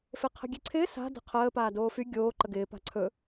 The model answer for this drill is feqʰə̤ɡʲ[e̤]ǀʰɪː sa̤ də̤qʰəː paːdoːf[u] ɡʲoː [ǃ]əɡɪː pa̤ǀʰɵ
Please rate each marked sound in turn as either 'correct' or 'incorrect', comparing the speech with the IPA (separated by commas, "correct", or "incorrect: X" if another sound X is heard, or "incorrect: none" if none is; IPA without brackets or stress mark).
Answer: incorrect: e, incorrect: y, correct